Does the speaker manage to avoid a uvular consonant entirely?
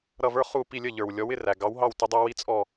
no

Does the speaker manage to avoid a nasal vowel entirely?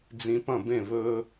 no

